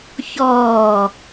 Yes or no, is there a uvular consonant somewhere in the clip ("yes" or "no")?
no